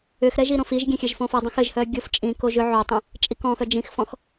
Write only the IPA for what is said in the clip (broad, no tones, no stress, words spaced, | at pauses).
ʏxɾɛ ʒiɾõfiʒɡʲɛ̃ xʲɘʒfõfɔdˤõx ɘʒhœ ɡʲoft͡ʃʼĩkoʒ ʏ ʕotˤɛ̃ | t͡ʃʼikɔ̃xœ d͡ʒĩxfɔ̃x